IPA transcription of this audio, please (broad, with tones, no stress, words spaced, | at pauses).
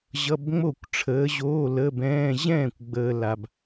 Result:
ʑʌ˧˥˧bŋ͡mo˥˩kʷʈ͡ʂʰəː˨˥ʑoː˧˥˧ lə˧˥˧bɛ̃ː˧˥˧ ʑɛ̃ː˥˩kʷɡ͡bəː˨ la˨b